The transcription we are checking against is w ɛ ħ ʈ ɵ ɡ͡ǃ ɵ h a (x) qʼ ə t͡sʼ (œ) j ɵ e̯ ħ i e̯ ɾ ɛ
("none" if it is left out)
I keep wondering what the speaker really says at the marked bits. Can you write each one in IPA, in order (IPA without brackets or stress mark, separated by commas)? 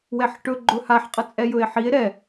ħ, ɛ